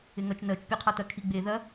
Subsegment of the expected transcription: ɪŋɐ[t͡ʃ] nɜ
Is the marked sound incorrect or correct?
correct